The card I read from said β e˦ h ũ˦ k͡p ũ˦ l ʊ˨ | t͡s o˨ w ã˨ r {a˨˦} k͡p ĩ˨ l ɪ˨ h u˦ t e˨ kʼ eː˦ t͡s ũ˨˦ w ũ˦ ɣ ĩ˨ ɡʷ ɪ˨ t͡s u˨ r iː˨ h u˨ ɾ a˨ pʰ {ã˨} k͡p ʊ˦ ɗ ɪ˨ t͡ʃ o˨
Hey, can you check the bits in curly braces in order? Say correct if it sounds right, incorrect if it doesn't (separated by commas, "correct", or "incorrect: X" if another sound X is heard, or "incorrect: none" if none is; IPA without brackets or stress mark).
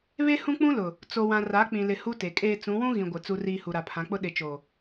correct, incorrect: ã˨˦